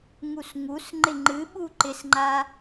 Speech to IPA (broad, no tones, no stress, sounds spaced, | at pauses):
ŋ u s ŋ u s ŋ͡ǃ ɪ ŋ͡ǃ ɨ ɓ u ǃ ɪ s ŋ͡ǃ a